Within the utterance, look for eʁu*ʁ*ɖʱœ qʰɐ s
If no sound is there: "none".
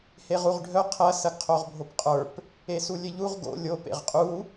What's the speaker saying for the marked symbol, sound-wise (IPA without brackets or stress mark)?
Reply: ʁ